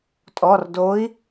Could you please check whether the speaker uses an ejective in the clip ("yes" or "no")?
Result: yes